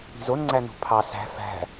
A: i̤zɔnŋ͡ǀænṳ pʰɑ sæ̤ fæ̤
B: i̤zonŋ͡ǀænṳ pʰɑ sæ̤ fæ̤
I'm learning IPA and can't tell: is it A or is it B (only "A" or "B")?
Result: B